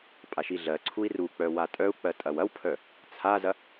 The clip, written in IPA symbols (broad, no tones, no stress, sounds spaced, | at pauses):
pʼ a ʃ i ɮ ɜ ǀʰ u i̯ r u k͡p œ w a tʼ œ u̯ k͡p ɜ tʼ ɐ w ɐ w pʰ œ | t͡sʰ a z ɐ